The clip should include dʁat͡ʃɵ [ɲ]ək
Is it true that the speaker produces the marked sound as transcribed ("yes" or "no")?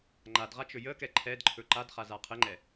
no